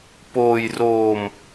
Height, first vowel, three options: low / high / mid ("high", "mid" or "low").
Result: mid